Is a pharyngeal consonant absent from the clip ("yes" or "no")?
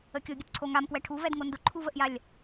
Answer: yes